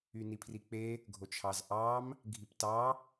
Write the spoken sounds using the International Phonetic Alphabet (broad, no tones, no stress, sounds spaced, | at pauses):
y n i pʰ r i k͡p e | ɡʱ o t͡ʃʰ ɑ z ʔ ɑ m | ɡʱ i p t ɑ